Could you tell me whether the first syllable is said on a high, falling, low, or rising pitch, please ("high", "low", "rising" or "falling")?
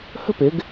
high